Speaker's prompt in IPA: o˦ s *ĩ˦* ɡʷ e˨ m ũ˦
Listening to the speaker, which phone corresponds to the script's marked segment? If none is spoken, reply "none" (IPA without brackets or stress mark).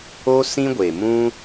ĩ˦